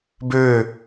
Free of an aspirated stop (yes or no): yes